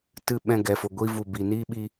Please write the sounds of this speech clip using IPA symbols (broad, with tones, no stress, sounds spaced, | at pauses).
t ɨ˨ ɓ ɛ̃˨ ɡ ɛ˨ f o˨ ɡʷ i˧ v u˨ b i˨ n iː˦ ɓ i˧